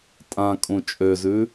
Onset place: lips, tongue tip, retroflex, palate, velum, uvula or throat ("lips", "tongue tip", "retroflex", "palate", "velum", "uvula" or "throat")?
tongue tip